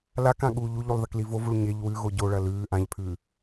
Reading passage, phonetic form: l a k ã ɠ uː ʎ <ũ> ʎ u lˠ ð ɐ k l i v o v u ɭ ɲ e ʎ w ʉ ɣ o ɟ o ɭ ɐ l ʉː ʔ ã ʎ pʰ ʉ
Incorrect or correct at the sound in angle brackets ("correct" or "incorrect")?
incorrect